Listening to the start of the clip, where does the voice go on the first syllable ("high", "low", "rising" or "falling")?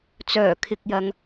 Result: low